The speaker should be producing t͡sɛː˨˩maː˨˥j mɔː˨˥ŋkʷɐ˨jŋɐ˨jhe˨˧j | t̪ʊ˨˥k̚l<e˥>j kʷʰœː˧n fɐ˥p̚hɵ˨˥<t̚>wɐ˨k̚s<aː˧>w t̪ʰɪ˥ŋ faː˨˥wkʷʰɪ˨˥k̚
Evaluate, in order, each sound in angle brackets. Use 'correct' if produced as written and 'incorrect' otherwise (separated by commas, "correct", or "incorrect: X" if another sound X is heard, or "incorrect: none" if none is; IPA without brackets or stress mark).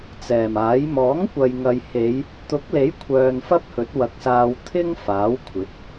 incorrect: e˨˥, correct, correct